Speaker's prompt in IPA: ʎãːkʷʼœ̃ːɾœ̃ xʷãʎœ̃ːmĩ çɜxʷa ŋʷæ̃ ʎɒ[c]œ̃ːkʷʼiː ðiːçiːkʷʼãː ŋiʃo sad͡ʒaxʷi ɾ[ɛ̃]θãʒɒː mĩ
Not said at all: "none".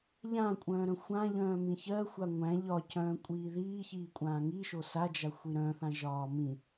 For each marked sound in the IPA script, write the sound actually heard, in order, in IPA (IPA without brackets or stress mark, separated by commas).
c, œ̃